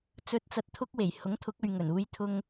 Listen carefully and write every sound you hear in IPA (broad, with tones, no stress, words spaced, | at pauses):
t͡sɵ˨˥t̚t͡sɐ˨t̚ t̪ʰʊ˥k̚we˨˩j hʊ˨˥ŋt̪ʰʊ˨˥k̚ɵ˨ɥŋɵ˨˩n uː˧jt̪ʰʊ˧ŋ